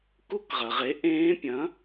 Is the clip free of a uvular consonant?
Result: no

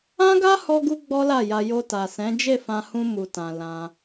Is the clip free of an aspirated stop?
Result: yes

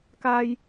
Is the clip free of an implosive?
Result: yes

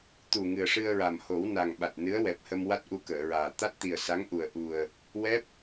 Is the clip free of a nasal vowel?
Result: yes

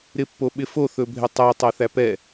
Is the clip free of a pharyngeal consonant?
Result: yes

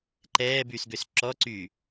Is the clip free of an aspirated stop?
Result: yes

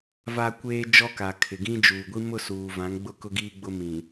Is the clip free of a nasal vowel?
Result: no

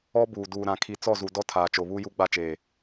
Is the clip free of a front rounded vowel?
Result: yes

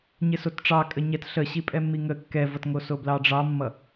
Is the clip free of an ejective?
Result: no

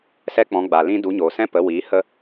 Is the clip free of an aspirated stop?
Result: yes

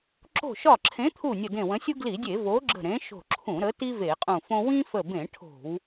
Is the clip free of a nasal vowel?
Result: no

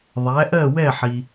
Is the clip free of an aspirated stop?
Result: yes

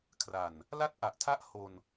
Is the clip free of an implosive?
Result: yes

